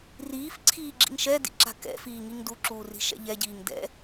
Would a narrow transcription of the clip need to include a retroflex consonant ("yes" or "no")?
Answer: no